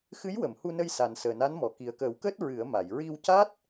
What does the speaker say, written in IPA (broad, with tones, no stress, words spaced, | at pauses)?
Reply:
xɨ˧˥jwə˨˩˨mhu˧nə˧j sa˨˩nsəː˨˩na˧˥nmɔ˨˩˨ ki˨˩ə̯kəː˨˩˦wkəː˦˥t̚ ɹɨ˨˩˦ə̯ma˨˩˨j ɹi˧wca˦˥t̚